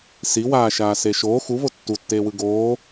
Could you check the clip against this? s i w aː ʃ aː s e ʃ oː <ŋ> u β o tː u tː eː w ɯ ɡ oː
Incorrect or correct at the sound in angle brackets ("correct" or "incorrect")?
incorrect